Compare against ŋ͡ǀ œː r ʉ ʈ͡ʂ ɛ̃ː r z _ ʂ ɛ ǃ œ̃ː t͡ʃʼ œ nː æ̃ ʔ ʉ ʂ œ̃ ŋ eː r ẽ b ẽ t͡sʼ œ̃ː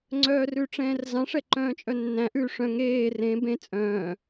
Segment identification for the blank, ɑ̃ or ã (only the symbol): ɑ̃